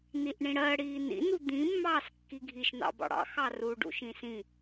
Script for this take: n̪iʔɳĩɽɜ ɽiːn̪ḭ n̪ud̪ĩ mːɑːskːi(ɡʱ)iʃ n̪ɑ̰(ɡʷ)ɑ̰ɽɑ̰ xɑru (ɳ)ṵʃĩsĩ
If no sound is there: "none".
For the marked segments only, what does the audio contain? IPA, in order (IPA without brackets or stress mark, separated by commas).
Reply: ɡʱ, b, ɖ